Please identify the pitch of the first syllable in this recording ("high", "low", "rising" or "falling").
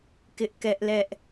high